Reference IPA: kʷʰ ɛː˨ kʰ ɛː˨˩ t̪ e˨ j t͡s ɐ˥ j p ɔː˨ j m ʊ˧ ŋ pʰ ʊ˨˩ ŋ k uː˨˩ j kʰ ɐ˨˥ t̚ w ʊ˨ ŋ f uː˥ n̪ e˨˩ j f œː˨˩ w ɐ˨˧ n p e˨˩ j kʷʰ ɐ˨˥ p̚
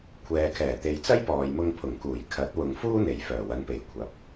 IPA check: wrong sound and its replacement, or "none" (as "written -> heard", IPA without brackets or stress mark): none